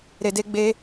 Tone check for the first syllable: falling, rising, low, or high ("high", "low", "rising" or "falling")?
low